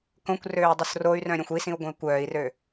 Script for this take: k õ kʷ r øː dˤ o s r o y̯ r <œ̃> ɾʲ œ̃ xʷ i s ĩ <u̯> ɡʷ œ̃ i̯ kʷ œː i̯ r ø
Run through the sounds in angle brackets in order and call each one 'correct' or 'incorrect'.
correct, correct

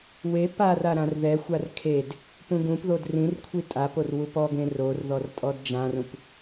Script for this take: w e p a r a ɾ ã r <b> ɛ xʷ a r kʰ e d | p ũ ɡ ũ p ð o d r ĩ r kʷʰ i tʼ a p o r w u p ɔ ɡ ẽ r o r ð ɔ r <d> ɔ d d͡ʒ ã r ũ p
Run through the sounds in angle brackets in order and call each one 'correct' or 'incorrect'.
incorrect, incorrect

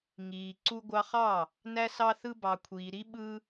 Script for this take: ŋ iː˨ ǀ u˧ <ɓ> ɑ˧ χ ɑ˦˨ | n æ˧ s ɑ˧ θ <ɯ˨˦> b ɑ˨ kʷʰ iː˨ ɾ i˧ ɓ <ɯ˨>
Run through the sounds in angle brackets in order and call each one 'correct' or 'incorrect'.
incorrect, incorrect, incorrect

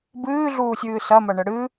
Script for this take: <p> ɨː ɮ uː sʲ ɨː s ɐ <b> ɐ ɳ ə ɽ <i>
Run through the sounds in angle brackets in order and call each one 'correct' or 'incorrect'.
incorrect, incorrect, incorrect

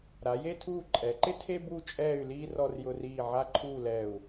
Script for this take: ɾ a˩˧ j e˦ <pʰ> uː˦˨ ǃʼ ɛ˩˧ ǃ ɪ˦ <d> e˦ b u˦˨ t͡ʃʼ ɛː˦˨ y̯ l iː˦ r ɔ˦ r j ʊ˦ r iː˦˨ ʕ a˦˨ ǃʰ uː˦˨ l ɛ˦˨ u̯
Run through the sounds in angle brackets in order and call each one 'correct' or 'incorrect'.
incorrect, incorrect

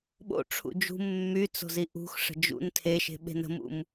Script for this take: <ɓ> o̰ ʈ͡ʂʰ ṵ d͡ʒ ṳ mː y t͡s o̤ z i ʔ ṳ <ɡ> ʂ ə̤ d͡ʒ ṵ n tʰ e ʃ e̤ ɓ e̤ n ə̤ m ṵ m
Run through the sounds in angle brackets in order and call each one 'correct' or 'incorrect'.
correct, incorrect

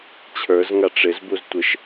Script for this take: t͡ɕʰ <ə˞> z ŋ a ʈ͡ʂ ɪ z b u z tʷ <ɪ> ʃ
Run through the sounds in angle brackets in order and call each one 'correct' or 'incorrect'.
correct, correct

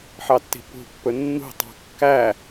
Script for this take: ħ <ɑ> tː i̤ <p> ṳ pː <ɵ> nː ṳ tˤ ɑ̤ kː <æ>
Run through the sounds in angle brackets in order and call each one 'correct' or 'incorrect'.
correct, correct, correct, correct

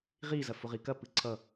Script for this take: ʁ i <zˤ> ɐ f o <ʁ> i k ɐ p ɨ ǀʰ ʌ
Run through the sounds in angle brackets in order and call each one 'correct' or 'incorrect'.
incorrect, correct

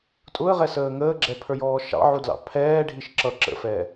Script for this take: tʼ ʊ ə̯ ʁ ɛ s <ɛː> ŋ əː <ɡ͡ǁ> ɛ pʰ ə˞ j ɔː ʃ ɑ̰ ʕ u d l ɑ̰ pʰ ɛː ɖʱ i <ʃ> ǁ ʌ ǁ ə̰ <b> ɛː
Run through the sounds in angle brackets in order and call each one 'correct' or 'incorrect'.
incorrect, correct, correct, incorrect

